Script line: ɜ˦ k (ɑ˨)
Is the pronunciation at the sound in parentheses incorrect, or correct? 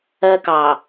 correct